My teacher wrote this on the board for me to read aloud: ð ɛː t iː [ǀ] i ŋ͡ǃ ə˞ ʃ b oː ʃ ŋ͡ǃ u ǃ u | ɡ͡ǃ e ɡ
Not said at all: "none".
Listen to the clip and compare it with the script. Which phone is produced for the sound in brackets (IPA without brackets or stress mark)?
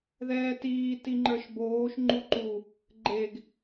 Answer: t